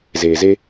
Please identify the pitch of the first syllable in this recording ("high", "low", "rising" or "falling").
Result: low